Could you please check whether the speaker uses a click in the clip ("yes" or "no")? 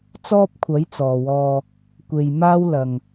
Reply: no